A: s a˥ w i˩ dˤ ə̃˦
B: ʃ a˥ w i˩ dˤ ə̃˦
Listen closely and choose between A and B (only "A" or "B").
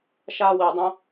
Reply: B